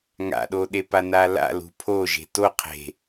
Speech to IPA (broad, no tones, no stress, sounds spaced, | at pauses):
ŋ a̰ ɗ o ɗ e p a n a l a̰ l ṳ pʰ o ʒ e̤ t o qʰ e̤